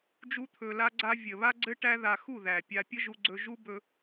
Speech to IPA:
d͡ʒ u˦ t̪ʰ ɵ˧ l a˦ ɡ͡ǀ a˦ vʲ ə˨ β a˦ ɡ͡ǀ ɘ˦ ʈ æ˦ ð a˧ x u˦˨ ð æ˨ pʲ a˧ pʲ ə˦ ʒ u˧ ɡ͡ǀ ɵ˧ ʒ u˦ b ɵ˧

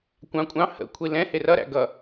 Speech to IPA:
kʷ ɑ̃ kʷʼ ɑ̃ h ə̰ kʷʰ i l ɛ̃ h ɪ r ʌ ɾ æ̰ ɡ ʌ

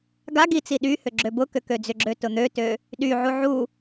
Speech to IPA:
ɡ a ɡ i t͡s i ɗ y h ʏ ɡ͡ǁ ø b ʊ k ʏ k ø d͡z ʏ ɡ͡ǁ ø t ʊ n̪ ø t ø | ɗ y ʕ u ʕ u

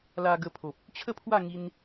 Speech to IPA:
l a˧ ɡ ə˧ pʰ o˨ p̚ | t͡ɕʰ ə˥˧ pʰ w a˥˧ ŋ i˧ n

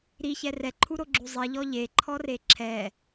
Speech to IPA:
ɾ i ç ɛ r ɛ ǃʰ u ɾ o ɡ͡ǁ u zˤ i ʎ ɔ ʎ e ǃʰ ɔ r e ǁʰ ɛ

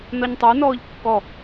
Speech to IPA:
n ɒ ɲ tˤ ə˞ n ɔː ʎ kː ɔ

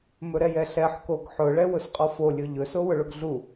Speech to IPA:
m ɵ ɾ ɛ j ɛ ɬ ɛ ħ k o ɡ ħ ʊ ɭ ɛ w ʊ s qʼ ɔ f o lʲ ɵ ʎ ɵ s o w ʊ ɭ ʊ ɡ ɮ u

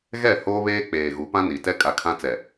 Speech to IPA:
ɣ ɛ˦˨ h oː˦ β eː˦ k͡p eː˨ ɣ u˨˦ p ã˦ n i˨ t ɛ˦ kʼ a˨ kʰ ã˦ t͡s ɛ˨

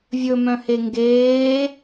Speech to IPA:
vʲ ɵ m œ̃ h e ŋ ɡ eː

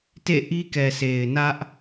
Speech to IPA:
t ḛ˦˨ ʔ i˦ k ɛ˨ sʰ e˨ ɪ̯ n ä˦ ʔ

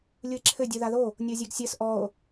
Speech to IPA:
lʲ u e̯ ǁʰ ɘ dʲ u ð a ð o | nʲ o zʲ e ɡ sʲ ɘ s ʔ ɔ o̯

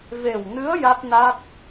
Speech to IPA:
v e˨˩ w n ɨ˧˥ ə̯ j a˦˥ t̚ n a˦˥ t̚

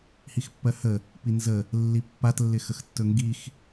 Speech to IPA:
h i x pː ɜ h ə | p i n z ə | lː i pː a t lː ɪ x ə x tː ɵ ŋ ɡ i x

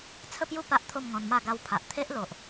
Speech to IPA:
t͡sʰ ə˥˧ p j u˥˧ p a˦ ʔ t̪ʰ o˥˧ m ŋ ɔ̃˧ n m a˥˧ ɡ a˧ w pʰ a˨ ʔ t̪ʰ e˦ ʔ l o˨ ʔ

